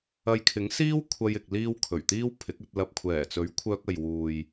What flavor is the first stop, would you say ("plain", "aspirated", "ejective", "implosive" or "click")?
aspirated